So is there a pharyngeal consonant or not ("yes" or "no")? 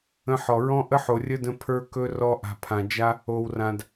yes